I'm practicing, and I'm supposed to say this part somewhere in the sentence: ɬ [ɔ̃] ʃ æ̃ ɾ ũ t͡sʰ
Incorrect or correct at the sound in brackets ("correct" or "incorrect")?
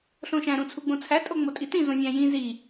incorrect